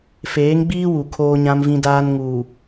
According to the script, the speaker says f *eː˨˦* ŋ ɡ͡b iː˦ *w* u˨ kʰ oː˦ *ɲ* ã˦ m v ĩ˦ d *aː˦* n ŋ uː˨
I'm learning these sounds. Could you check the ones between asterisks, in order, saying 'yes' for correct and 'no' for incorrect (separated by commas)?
yes, yes, yes, yes